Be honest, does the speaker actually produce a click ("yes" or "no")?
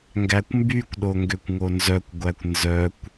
no